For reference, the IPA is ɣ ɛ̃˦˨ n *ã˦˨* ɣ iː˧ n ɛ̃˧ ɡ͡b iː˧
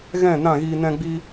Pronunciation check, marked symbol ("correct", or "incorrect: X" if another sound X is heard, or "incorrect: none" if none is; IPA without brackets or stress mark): correct